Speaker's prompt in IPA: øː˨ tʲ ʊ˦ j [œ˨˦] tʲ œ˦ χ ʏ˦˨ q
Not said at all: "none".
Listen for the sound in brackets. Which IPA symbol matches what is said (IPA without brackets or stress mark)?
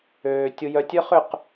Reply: œ˦